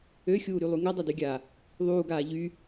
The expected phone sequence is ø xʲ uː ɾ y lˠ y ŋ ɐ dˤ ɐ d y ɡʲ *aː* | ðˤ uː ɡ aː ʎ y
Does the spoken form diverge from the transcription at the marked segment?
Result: no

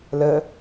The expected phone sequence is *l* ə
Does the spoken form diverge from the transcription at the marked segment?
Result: no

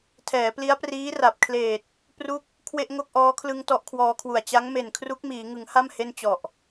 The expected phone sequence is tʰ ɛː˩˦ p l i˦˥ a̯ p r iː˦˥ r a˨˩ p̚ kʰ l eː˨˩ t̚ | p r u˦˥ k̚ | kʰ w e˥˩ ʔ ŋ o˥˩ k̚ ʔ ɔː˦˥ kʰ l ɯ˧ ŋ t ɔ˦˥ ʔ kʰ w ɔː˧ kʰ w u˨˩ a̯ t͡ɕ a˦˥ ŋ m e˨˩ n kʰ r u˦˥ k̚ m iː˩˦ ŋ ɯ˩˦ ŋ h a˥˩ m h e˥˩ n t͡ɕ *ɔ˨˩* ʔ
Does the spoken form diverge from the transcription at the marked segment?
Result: no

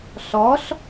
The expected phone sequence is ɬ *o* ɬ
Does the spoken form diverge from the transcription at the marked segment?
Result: yes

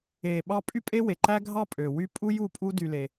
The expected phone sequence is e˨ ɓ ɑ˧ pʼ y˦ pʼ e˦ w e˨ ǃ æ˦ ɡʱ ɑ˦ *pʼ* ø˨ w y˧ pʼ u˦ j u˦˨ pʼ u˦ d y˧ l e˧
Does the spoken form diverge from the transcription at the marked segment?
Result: no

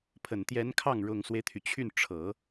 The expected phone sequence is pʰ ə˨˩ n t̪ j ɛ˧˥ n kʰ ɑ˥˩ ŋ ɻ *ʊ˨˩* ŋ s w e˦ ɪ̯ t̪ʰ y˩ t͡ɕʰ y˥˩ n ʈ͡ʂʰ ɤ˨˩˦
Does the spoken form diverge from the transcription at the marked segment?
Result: no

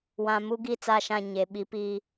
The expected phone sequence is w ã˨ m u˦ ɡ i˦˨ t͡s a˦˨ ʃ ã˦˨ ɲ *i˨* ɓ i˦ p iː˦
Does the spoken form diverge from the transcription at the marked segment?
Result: yes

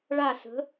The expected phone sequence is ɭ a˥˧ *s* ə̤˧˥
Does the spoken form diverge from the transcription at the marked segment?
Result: no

